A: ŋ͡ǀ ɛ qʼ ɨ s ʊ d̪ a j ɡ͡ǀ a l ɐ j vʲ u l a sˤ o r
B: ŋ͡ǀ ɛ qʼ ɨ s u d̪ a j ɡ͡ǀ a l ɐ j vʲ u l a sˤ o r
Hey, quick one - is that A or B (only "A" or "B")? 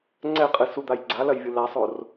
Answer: B